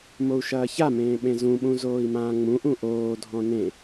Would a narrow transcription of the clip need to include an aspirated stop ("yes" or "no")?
no